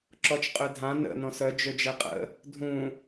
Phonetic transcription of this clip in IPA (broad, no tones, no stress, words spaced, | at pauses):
ǁɔt͡ʃqʼødʱã nə̰ nɔ̃sœ d͡ʒød͡ʒɛqʼə̰ | dʱũ